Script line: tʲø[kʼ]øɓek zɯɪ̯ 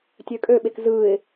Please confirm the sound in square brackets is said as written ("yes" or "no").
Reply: yes